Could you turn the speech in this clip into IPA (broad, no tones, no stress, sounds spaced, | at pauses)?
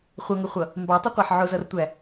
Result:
χʷ ʌ ŋ ə χʷ ʌ | m b ɑ tˤ ə qʷ ɑ ħ ʕ ʊ z ʌ r tʷ æ